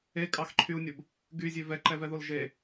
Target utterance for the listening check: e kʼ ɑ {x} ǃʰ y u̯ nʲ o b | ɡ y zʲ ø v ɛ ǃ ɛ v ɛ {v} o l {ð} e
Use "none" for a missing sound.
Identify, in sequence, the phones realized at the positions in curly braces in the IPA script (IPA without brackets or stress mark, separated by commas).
x, ð, ʒ